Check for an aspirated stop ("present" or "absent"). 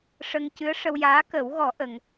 absent